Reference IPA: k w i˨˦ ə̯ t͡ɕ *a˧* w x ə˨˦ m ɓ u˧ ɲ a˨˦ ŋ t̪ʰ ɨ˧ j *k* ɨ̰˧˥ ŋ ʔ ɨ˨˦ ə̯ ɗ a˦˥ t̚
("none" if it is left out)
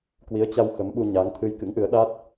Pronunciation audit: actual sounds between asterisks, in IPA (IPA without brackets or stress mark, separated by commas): a˧, k